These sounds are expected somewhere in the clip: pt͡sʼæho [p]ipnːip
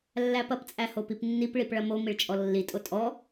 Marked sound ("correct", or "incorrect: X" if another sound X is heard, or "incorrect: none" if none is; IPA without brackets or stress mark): correct